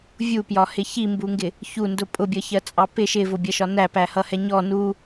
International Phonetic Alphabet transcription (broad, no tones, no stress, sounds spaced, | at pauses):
vʲ u p j ɒ h ɪ ç i m b u ŋ ɡ ɪ | ç u n d ʊ pʼ ʊ bʲ ʌ ç ɜ t͡sʼ ɑ p ɪ ʃ ɪ v ʊ bʲ ʌ ʃ ɒ n æ p æ h ʌ h ɛ ɲ ɔ n u